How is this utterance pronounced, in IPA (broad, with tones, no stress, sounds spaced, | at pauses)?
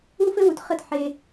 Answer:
u˦ f ɘ˦ w u˨ t χ ə˦˨ t ħ e˧